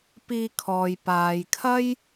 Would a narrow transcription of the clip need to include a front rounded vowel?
no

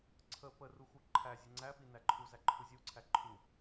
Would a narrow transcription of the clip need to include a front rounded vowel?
no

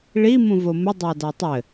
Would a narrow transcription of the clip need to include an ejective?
no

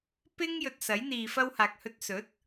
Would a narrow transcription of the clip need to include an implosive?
no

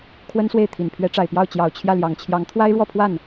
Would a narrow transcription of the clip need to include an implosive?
no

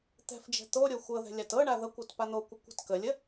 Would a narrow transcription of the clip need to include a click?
no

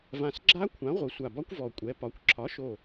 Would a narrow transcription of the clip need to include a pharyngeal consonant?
no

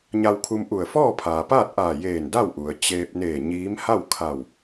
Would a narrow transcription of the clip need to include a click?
no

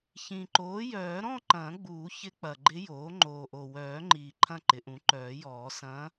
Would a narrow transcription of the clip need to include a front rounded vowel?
yes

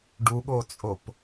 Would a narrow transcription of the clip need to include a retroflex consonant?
yes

